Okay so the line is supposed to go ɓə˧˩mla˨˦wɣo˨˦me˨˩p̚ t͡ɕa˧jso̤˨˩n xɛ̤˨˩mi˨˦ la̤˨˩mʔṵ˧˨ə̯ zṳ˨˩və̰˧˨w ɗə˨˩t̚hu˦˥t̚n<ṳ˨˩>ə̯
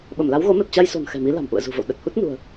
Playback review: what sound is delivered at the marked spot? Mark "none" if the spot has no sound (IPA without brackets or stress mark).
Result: ṳ˨˩